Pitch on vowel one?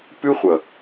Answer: high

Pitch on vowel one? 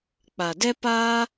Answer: low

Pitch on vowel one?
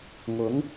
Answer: rising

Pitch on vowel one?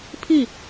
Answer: falling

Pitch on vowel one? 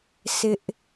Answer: high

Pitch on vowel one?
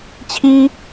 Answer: high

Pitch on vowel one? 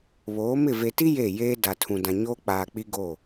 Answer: rising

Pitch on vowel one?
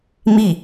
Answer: falling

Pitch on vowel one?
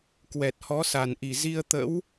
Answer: low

